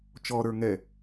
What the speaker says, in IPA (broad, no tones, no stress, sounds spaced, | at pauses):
t͡ʃ ɔ ɾ ə˞ ŋ ɛ